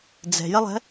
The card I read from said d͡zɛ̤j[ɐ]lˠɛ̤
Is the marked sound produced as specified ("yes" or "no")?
yes